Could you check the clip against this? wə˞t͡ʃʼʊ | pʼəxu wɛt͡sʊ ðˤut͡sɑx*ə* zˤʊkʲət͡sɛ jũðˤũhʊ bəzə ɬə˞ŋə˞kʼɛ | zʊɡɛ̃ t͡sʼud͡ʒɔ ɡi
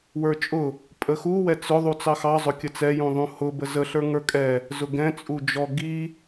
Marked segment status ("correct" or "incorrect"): incorrect